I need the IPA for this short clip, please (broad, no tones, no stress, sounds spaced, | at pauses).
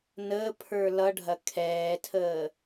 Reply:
n əː pʰ ə˞ l ʌ ɖʱ ɐ kʰ ɛː tʰ əː